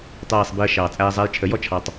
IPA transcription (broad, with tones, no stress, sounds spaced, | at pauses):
tˤ æː˨ sˤ b i˨ ə̯ ʃ ɑː˨ t͡sʼ æː˧ zˤ æ˧ j t͡ʃʰ ə˨˦ j ɔ˦˨ t͡ʃʰ ɑ˧ tˤ